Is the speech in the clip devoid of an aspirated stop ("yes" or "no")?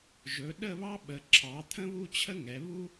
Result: no